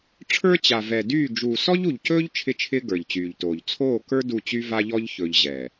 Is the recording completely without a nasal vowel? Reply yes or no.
yes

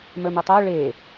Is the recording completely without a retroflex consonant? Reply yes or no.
no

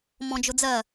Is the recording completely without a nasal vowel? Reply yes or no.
no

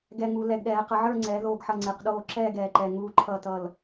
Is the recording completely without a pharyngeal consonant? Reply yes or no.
no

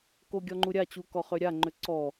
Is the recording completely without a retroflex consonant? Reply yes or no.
yes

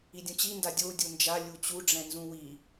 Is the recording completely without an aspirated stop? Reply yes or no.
yes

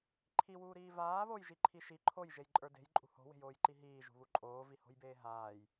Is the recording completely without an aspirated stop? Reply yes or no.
no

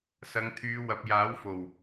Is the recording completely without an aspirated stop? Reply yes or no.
no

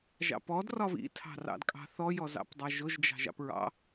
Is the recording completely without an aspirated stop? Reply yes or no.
no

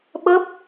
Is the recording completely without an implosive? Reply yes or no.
no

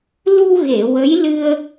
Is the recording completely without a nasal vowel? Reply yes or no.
yes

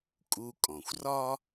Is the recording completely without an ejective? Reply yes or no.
no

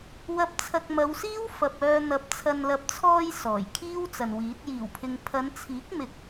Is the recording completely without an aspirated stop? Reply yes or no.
no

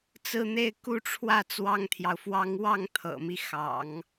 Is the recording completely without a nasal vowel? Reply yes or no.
yes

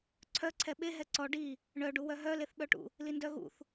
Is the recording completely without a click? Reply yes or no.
no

